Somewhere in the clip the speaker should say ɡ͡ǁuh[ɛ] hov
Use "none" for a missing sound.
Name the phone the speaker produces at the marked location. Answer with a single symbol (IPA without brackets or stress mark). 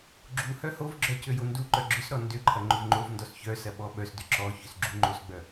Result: œ